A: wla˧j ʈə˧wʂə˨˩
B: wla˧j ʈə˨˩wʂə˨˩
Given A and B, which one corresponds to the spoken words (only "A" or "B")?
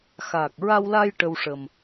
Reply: A